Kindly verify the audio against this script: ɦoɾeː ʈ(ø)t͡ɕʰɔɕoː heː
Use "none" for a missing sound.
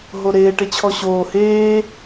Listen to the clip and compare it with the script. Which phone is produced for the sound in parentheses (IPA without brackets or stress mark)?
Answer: e